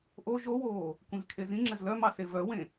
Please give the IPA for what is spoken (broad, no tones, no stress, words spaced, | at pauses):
ʔo ʒowoː | kʷẽzkʰezĩŋ͡ǁɛz lœmɑ sevœwẽ